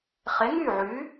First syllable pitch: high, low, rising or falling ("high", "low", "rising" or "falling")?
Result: rising